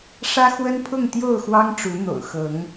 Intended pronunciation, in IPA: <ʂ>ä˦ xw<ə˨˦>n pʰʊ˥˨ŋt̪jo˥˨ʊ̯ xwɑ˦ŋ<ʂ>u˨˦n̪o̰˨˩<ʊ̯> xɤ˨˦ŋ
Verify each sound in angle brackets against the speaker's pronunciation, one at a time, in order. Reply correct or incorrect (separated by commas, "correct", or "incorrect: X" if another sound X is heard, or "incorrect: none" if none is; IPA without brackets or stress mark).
correct, incorrect: ə˦, incorrect: ʈ͡ʂ, correct